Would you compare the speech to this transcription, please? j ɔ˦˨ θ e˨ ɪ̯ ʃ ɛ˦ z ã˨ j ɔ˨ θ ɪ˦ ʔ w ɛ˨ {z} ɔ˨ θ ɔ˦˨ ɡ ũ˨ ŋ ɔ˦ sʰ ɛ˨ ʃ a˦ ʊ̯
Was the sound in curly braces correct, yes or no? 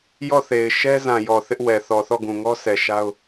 no